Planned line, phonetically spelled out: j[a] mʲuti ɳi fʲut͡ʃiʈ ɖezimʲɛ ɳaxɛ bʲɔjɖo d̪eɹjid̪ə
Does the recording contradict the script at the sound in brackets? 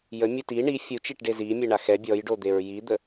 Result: yes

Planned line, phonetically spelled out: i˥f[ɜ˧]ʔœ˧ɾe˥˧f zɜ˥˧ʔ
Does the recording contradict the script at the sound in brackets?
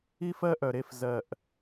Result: yes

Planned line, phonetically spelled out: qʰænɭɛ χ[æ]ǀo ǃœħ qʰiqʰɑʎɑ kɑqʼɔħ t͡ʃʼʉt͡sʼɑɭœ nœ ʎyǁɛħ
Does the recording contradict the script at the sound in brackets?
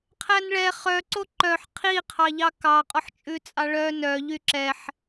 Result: yes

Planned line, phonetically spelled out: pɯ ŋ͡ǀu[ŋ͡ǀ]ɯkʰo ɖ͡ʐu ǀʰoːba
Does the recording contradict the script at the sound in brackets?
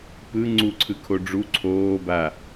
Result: yes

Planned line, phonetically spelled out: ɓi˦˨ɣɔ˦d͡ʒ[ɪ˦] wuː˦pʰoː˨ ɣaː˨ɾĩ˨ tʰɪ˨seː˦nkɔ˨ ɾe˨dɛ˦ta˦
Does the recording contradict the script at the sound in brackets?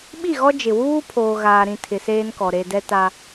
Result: yes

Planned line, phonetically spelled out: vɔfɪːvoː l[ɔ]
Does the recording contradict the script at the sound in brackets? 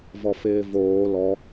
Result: no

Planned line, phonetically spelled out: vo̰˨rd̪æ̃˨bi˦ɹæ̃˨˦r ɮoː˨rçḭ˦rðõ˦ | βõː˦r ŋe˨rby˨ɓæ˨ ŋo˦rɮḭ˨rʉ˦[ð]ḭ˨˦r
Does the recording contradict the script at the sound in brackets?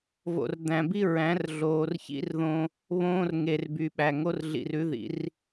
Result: no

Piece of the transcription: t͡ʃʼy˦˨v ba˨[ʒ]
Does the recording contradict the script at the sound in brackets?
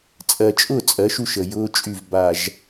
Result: no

